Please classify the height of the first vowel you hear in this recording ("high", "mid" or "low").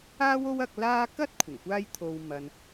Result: low